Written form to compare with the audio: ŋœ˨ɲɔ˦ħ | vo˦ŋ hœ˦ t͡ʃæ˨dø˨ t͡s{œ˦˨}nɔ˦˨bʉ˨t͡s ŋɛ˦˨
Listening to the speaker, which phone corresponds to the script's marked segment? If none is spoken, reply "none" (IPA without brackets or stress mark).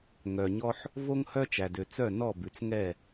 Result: œ˦˨